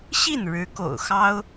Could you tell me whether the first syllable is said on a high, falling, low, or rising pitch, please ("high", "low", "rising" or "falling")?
falling